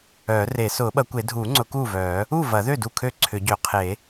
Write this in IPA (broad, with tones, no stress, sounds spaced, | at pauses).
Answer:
œː˨˩˦ r e˨˩˦ s ʊː˨˩˦ ɓ ɐ˨˩˦ kʷ e˨˩˦ dʱ uː˨˩˦ ŋ͡ǀ ʊ˨˩˦ k uː˥˩ v œː˨˩˦ | uː˥˩ v ɐ˨˩˦ ð ø˥˩ d u˥˩ kʰ ø˥˩ ǀʰ ʏ˨˩˦ ɟ ø˨˩˦ qʰ e˨˩˦